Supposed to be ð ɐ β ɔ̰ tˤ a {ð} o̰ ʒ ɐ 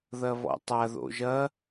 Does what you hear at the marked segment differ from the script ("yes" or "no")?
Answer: no